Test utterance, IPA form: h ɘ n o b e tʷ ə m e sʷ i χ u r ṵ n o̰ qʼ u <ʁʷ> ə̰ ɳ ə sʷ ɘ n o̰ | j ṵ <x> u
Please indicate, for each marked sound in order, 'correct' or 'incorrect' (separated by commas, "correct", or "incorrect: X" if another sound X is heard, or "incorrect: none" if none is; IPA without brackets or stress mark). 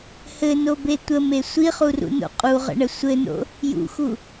incorrect: ʁ, correct